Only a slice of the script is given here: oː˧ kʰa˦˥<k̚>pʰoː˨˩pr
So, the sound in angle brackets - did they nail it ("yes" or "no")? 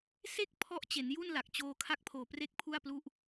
yes